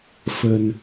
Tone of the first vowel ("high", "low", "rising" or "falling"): low